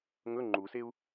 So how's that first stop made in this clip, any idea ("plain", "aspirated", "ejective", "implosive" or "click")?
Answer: click